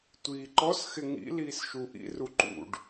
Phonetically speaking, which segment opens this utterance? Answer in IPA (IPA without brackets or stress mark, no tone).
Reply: tʷ